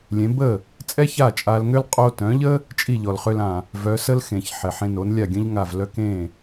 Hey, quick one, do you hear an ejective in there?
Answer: yes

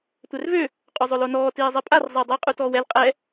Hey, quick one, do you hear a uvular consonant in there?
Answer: yes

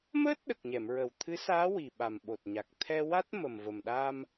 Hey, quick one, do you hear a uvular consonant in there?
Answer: no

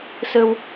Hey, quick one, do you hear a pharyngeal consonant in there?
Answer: no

